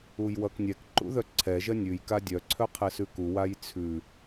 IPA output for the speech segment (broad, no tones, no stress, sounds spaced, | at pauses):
u j w ʌ k nʲ ɛ k ǃ ṵ ð œ ǀʰ ɛ ʒ ɜ nʲ ʉ j k a dʲ œ ǀʰ œ qʰ ɛ s ʉ k u w a j t͡sʰ ʉ